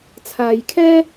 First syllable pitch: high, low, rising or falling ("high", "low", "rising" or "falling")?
low